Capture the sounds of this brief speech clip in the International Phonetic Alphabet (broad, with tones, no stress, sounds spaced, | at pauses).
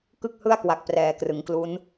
k ɯ˥˩ k̚ h ɯ˥˩ a̯ k w a˥˩ k̚ p r ɛː˧ k r ɯ˩˦ ŋ k l u˦˥ n